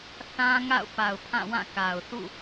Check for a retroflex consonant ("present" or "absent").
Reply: absent